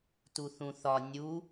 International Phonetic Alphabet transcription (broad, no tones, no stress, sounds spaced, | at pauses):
t u θ ũ θ ɒ nʲ u